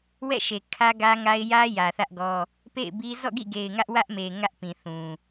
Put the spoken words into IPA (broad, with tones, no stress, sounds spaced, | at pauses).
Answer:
w ɛ̰˦˨ ʃ e˨ kʰ ä˦ ɡ ä˦ ŋ a˦ ɪ̯ j ä˦ j ä˨ θ ä˦ ʔ ɡ ɔ˦ | p ḛ˦˨ ɪ̯ b i˦ z ɔ̰˦˨ ɡ ḭ˦˨ ɡ e˨ ɪ̯ ŋ ä˦ ʔ w ä˦ ʔ m e˨ ŋ ä˦ ʔ p ĩ˨ θ ũ˨